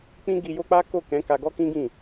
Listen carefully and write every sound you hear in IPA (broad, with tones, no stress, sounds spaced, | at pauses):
k͡p ĩ˦ ɡ i˧ j o˦ k͡p a˦ k o˦˨ k ɛ̃˨˦ k a˧ ɡ ɔ˦ k ĩ˦ ɡ ĩ˦˨